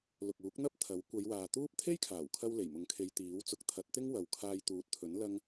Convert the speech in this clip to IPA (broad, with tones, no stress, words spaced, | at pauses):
lʊ˨k̚uː˨˥k̚n̪ɐ˥p̚ t̪ʰɐ˨˥w kʷɐ˨˧jwaː˨t̪uː˥p̚ t̪ʰe˥jkʰaː˨˩wkʰɐ˧w le˨˩jmʊ˨˥ŋkʰe˨˧j t̪iː˨˥w t͡sʊ˨˥k̚t̪ʰɐ˨˥t̚t̪ɪ˥ŋ wɐ˨wkʰaː˧jt̪uː˨˥t̚t̪ʰɵ˨˥n lɐ˥ŋ